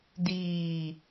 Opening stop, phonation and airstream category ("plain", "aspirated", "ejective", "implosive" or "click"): plain